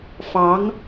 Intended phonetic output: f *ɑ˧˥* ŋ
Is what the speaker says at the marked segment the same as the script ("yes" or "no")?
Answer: yes